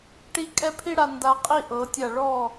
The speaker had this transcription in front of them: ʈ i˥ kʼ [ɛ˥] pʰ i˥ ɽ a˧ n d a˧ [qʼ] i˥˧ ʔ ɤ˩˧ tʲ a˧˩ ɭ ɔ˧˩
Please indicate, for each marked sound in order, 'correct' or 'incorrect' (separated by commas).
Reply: correct, correct